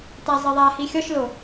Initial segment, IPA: t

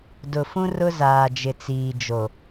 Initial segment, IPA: d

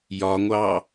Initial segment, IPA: j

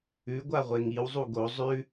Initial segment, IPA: ʉ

